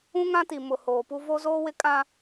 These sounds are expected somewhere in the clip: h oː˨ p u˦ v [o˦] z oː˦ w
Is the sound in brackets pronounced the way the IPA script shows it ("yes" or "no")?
yes